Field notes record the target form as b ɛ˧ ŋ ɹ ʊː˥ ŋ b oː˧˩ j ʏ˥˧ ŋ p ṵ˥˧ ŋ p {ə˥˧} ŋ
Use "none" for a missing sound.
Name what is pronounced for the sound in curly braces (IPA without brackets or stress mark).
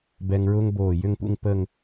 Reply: ə˥˧